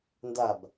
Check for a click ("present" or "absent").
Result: absent